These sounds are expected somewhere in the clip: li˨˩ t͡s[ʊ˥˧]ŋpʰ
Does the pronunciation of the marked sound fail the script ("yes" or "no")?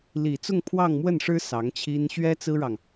no